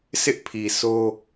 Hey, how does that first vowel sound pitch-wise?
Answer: high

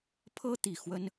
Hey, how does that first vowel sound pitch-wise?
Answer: high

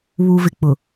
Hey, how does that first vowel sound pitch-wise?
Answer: low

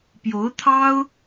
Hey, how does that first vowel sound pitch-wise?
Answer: rising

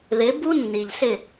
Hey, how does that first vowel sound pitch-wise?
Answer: rising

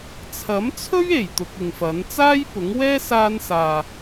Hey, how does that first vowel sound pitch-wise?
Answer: rising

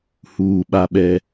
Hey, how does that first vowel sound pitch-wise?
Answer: low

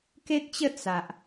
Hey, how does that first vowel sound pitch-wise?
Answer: high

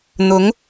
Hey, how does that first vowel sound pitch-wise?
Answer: rising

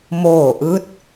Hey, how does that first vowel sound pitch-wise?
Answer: falling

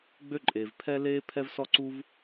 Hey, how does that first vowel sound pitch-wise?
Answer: high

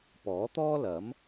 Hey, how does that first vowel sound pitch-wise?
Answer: rising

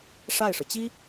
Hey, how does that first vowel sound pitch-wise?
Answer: falling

